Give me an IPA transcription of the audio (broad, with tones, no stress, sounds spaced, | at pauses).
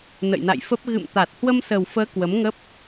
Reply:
n ə̰˧˨ j n a̰˧˨ j f ə˦˥ p̚ ɣ ɨ̰˧˨ m t̪ a˨˩ t̚ h w ə˧ m s ə˨˩ w f əː˨˦ k w ə˨˦ m ŋ ə˦˥ p̚